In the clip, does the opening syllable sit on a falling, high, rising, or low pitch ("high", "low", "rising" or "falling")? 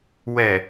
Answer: low